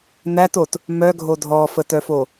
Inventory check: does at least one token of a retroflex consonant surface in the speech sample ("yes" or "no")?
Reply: no